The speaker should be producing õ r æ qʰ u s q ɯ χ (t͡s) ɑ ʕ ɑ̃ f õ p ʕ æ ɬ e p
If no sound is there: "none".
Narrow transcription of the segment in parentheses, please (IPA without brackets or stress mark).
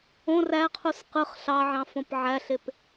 ɬ